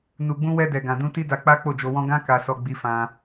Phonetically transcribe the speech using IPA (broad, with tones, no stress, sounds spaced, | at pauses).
n u˨ ɡ͡b ũ˧ w ɛ˧ d ɛ˨ ɡ ã˨ d ũ˧ t i˦ d a˧ k͡p a˦ k͡p o˦˨ d͡ʒ o˧ w ɔ̃˦ ɡ ã˦ k a˧ s ɔ˧ ɡ͡b i˧ f ã˧